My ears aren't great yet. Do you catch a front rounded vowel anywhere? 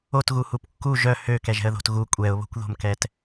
yes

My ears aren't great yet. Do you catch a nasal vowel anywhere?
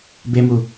no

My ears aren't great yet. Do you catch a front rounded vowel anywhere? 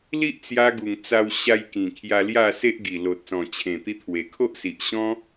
no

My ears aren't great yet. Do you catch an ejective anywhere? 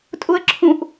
yes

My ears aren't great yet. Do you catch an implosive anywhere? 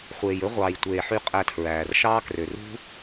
no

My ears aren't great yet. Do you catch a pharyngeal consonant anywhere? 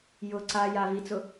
no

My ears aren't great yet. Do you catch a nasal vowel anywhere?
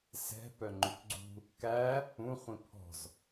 yes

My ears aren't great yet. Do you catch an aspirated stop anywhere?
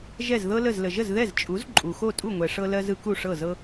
no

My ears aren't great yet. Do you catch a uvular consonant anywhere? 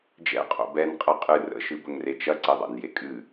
yes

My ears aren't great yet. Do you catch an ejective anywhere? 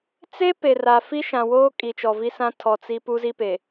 yes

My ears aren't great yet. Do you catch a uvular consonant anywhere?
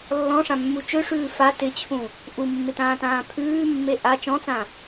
no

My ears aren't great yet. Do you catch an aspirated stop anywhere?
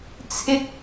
yes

